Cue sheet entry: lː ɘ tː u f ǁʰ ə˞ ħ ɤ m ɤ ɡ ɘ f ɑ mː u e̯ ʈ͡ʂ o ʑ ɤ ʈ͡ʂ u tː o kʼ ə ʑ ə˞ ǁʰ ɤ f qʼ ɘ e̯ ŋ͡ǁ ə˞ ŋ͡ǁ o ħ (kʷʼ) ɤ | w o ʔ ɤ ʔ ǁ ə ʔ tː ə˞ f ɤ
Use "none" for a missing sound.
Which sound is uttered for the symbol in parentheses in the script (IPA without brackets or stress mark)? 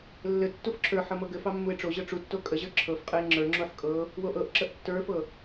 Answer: kʼ